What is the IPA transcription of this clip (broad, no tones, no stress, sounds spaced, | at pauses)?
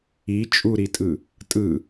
i t͡ʃʼ u ɾ i tʼ ɯ | tʼ ɯ